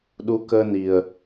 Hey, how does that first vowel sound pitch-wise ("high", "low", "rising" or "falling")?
rising